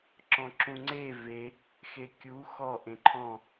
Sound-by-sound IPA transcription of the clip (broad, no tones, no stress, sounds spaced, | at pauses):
ǁ ɔ̃ ǁ ũ ŋ͡ǀ e v e | x e kʲ u x ɔ ʔ ẽ ǃʰ ɔ̃